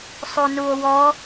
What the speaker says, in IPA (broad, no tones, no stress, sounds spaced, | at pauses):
sˤ u n u o̯ w ɔ